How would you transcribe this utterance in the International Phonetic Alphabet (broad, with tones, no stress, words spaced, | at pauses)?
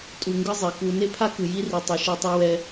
tʼu˨ŋɡɯ˦ zˤe˨ku˦ ne˦pʰa˦ kɯ˨ji˦ri˨ tˤɯ˨ʃe˦tˤu˦wɛ˦